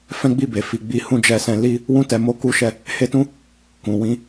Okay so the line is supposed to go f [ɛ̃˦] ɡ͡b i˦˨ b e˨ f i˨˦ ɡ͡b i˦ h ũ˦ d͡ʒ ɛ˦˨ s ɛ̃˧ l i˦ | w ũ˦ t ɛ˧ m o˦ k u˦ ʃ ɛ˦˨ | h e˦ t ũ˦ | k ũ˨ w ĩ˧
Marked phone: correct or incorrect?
correct